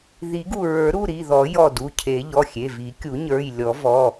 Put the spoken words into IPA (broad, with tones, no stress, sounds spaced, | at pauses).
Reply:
ð i˨˩˦ ɡ u˧˩ ɹ ə˞˨˩˦ ɾ u˩˧˩ ɾ i˩˧˩ ð ɔ˨˩˦ j ɔ˧˩ d u˩˧˩ cʰ e˨˩˦ ʎ ɔ˩˧˩ xʲ e˩˧˩ v i˨˩˦ kʲ u˨˩˦ ɲ ə˞˩˧˩ j lʲ ɔ˨˩˦ v ɔ˩˧˩